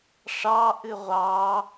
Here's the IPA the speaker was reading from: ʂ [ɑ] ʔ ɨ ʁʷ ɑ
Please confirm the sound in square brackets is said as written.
yes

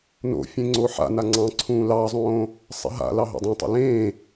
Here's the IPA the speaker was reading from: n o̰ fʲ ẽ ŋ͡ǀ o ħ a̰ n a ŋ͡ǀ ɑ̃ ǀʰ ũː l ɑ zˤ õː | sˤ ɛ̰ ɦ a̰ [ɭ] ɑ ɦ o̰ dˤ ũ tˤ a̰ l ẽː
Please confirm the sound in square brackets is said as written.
no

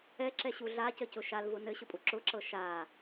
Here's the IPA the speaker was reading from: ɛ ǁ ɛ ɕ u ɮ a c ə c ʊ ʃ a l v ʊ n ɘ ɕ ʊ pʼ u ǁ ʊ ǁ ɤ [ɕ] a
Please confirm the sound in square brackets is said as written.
no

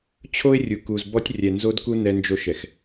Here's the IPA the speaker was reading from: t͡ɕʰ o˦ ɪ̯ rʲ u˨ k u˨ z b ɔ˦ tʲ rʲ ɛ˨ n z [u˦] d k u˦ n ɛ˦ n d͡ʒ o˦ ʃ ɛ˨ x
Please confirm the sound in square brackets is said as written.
no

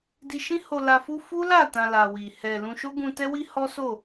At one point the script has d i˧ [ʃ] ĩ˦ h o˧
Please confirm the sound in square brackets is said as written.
yes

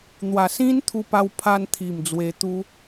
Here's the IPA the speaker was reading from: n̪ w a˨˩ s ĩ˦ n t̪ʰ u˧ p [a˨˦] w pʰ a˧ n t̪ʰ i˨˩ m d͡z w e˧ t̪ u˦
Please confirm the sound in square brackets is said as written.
no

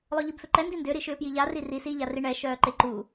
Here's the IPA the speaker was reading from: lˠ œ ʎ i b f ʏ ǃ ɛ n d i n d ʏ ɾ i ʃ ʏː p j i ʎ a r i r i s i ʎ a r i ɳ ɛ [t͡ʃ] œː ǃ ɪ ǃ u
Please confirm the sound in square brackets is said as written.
no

